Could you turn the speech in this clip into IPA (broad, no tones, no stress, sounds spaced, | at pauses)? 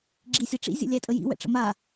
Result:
ɡ͡ǁ i sʲ æ ʈ͡ʂ ḭ zʲ ə̰ lʲ æ tʼ ə j ḭ w ɛ̰ ʈ͡ʂ ə̰ m a